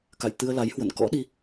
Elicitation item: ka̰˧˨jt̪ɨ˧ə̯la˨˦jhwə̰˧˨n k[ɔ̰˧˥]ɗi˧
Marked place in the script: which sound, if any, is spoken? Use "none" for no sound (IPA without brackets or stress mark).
ɔ̰˧˥